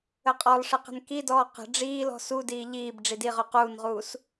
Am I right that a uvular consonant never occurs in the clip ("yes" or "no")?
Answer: no